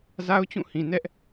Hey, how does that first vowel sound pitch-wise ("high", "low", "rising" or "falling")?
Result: high